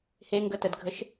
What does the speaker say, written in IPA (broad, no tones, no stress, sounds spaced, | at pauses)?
h e ŋ ɡ ə t ə d ɡʱ ə ʃ